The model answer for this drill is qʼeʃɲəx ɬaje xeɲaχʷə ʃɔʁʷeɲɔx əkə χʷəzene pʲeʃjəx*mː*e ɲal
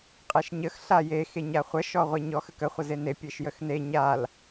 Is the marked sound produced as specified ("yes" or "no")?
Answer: no